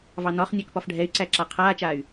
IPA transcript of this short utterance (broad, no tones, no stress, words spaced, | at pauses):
vɑnɒχnʲæk pɒfɖʱɛy̯ǀæǁa qʰaːt͡ʃaːy̯